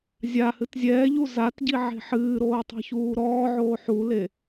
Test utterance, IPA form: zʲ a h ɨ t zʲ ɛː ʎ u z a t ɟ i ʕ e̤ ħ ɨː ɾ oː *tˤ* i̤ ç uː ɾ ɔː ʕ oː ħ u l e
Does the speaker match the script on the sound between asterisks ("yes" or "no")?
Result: yes